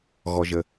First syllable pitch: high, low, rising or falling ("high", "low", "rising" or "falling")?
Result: low